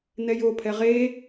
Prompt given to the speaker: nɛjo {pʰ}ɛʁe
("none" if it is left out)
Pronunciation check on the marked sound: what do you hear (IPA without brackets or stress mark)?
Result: pʰ